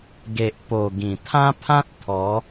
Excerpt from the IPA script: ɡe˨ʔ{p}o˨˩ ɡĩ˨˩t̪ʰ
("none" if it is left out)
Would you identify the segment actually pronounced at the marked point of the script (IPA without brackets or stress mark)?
p